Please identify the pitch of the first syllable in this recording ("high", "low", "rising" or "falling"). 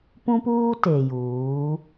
high